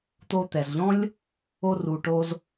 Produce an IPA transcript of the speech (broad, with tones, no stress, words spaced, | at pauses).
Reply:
t̪o˧t̪ɛ˨zʎɔ̃˦lʲ | o˧ru˨ʈo˧z